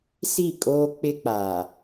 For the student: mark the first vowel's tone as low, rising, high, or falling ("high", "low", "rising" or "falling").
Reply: falling